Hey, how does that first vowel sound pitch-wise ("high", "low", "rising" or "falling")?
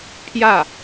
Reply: falling